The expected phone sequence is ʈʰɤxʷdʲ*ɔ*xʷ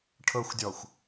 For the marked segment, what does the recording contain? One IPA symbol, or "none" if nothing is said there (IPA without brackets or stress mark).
ɔ